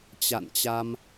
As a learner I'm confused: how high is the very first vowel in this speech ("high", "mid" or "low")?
low